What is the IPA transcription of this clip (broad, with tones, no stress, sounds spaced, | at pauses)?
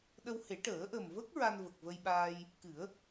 ɗ ə˧ w h e˨˩˦ ʈ əː˨˩˦ ʔ ə˨˩ m v ə˦˥ k̚ ɹ a˧ n v ə˨˩ k̚ v ə˧ j ɓ aː˧ j | k ɨ˨˩˦ ə̯